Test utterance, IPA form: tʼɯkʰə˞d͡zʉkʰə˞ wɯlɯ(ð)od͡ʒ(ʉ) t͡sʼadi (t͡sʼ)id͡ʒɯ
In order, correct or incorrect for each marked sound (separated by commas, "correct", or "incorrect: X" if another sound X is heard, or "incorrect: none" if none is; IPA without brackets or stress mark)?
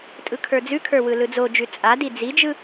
incorrect: d͡z, correct, incorrect: d͡z